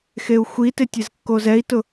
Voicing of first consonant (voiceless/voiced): voiceless